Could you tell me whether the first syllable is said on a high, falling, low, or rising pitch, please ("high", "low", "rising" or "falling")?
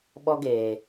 high